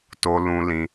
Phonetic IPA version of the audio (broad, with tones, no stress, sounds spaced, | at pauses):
t o˦ l ũ˦ l ĩ˦